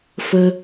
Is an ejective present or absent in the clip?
absent